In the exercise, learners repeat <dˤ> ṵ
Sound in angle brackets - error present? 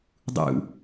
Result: no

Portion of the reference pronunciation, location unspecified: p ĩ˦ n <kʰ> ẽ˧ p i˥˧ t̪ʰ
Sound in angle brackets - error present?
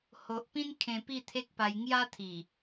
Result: no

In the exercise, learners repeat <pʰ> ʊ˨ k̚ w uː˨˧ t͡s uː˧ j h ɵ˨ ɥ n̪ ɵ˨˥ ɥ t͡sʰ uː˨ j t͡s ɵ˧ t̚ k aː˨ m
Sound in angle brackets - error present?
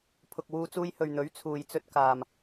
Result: no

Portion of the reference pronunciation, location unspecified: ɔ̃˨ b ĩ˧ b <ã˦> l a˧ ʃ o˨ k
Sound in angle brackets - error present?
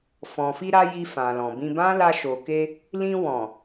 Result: no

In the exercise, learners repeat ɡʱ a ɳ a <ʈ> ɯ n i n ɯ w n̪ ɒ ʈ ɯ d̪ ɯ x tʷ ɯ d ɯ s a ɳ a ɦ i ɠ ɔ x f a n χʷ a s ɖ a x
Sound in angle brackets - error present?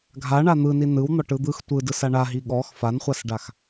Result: yes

